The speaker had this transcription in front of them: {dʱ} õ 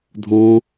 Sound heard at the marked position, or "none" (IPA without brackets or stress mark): dʱ